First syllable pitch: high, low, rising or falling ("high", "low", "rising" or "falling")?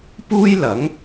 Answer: high